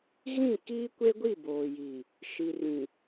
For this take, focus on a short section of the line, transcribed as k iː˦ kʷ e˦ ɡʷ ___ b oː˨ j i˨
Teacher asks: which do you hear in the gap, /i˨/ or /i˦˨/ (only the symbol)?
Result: i˦˨